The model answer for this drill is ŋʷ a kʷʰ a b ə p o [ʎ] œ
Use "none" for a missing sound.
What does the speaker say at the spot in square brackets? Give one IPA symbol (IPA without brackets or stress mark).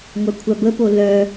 l